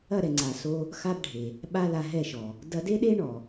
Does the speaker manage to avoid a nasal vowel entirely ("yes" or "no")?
yes